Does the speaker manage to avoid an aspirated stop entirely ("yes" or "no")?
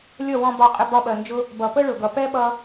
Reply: yes